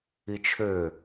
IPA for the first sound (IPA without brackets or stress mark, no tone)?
i